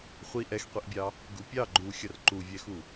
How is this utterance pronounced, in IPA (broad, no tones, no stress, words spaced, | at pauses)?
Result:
χʷi ʔɛxqʷiʔbʲɑ | ɡupʲɑ ɡ͡ǃu xʲʌrǃuvʲɛxu